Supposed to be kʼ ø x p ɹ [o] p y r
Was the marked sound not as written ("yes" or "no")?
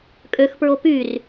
no